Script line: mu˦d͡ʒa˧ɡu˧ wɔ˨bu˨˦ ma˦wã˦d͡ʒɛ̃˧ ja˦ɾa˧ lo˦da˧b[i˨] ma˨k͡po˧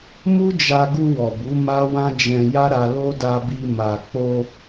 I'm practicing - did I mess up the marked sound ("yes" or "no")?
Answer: yes